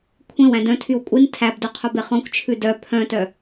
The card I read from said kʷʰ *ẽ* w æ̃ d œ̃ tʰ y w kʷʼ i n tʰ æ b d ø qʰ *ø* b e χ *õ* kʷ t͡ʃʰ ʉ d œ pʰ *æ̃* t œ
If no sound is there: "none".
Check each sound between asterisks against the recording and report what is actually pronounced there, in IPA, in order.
ẽ, ɵ, ɔ̃, œ̃

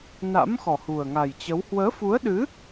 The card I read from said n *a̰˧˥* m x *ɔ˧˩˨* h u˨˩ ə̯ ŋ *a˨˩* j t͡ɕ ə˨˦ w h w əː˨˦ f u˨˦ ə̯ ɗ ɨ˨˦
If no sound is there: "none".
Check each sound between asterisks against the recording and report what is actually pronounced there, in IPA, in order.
a̰˧˥, ɔ˨˩, a˨˩

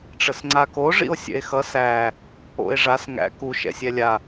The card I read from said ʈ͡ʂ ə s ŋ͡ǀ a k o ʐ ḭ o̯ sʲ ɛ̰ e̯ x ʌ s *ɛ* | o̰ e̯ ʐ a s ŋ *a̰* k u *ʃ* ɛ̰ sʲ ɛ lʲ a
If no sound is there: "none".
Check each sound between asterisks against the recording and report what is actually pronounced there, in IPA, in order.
æ, æ̰, ʃ

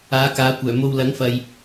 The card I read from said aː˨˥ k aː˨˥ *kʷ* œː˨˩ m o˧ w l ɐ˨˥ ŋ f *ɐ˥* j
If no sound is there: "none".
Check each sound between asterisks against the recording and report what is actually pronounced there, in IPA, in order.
kʷ, ɐ˨

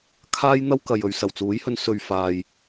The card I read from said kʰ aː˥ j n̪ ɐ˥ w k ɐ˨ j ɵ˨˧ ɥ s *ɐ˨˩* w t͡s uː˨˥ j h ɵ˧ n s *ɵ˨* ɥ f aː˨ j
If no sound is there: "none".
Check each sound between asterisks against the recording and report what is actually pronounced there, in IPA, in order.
ɐ˨˩, ɵ˨

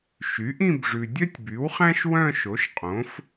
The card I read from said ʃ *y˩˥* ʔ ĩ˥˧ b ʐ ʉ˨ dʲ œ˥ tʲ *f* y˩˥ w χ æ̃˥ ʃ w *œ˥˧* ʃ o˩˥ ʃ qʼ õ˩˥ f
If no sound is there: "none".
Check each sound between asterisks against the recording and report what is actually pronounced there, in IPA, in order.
y˩˥, b, œ̃˥˧

